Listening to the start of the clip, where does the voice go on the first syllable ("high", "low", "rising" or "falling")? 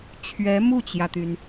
rising